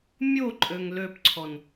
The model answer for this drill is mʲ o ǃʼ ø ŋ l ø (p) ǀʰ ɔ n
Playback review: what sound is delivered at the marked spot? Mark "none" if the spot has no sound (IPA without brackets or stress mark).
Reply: p